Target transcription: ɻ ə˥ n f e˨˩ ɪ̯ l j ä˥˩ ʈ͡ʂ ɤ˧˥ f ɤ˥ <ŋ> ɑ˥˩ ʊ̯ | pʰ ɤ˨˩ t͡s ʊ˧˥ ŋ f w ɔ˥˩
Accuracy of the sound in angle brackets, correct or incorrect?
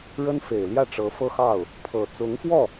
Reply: incorrect